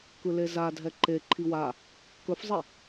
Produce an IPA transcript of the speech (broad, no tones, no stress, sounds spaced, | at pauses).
k ɯ l e z a dʱ ɛ ǃ e ǃʰ i w a | k ɵ f zˤ i